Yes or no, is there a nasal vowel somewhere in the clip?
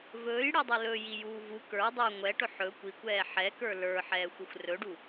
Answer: no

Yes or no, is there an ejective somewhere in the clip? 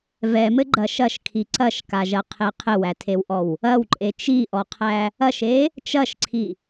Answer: yes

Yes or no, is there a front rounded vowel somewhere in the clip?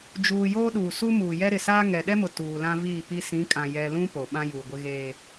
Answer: no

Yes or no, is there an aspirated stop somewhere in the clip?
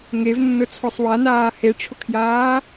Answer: yes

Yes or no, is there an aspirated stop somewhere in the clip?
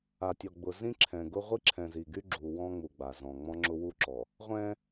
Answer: yes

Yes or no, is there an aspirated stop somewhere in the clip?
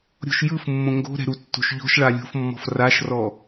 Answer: no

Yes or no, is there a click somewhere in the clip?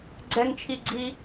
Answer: yes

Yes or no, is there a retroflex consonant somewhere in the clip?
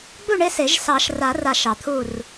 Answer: yes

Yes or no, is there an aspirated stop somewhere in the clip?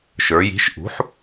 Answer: no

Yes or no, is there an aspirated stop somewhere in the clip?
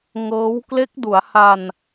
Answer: no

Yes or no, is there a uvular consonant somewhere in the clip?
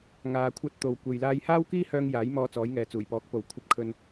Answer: no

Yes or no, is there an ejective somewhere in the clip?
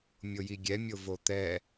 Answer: no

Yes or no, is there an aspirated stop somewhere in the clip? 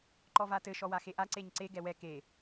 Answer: no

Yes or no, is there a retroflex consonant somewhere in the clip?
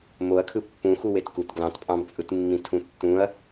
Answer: no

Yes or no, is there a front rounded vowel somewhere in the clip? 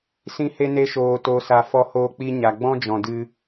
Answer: no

